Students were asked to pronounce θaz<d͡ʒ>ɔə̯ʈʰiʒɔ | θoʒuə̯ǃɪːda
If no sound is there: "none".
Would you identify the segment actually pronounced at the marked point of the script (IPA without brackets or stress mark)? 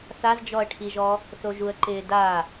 d͡ʒ